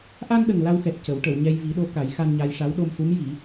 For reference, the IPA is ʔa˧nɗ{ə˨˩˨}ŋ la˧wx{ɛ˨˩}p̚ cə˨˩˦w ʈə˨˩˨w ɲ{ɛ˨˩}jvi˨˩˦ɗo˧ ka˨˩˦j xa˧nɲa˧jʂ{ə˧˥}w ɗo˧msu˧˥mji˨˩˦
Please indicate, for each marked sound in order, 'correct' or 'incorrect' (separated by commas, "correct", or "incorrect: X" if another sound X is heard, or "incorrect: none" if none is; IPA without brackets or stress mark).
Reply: incorrect: ə˨˩, correct, incorrect: ɛ˧, incorrect: a˧˥